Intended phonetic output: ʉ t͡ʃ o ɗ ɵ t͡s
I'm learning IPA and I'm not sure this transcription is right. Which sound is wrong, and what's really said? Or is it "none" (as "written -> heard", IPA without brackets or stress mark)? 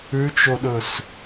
t͡s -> s